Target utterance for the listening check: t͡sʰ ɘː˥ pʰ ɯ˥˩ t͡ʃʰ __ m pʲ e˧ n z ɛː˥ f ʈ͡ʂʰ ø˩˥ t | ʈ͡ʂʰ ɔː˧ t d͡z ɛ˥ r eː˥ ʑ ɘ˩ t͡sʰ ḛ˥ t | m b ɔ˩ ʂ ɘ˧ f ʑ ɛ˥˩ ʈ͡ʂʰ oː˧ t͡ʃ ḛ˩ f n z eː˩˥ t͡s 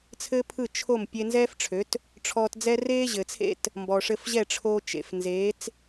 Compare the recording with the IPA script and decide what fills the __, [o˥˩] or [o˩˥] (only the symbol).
o˥˩